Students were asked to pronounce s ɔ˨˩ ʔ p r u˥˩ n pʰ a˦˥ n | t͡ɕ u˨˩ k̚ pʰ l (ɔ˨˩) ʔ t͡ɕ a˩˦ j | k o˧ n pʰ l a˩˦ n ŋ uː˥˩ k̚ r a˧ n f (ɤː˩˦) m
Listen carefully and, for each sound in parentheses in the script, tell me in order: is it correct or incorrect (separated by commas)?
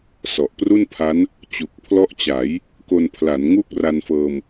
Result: incorrect, incorrect